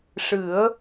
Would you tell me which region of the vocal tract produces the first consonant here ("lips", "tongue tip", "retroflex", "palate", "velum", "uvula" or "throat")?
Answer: retroflex